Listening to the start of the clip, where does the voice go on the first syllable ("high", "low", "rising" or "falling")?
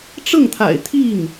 falling